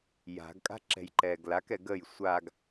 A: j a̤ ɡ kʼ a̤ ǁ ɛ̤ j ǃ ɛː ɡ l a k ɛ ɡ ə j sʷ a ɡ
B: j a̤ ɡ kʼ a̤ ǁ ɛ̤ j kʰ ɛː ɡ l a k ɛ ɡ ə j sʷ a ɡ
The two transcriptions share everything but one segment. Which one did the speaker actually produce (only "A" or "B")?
A